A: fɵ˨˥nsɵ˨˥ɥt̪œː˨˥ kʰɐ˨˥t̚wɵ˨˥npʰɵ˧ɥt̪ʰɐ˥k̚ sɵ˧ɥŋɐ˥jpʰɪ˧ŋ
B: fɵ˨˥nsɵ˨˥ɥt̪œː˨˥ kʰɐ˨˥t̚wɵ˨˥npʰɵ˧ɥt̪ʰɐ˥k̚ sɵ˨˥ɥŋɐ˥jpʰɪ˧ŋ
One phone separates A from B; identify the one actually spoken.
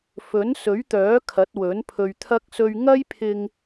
A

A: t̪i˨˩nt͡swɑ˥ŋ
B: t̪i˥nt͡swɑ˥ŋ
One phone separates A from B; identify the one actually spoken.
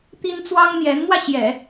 B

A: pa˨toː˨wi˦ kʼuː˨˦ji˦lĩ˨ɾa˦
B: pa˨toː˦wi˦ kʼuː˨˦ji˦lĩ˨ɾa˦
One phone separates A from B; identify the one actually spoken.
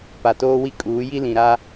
B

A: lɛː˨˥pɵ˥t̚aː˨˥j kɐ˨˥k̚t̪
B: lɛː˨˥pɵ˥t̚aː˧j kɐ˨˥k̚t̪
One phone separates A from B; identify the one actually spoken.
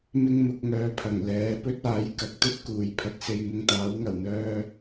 A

